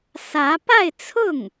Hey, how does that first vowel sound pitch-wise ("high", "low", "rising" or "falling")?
rising